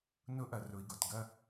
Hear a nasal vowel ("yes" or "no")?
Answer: no